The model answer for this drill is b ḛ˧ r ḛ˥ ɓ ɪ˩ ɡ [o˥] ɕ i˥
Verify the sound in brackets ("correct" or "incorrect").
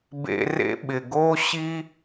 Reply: correct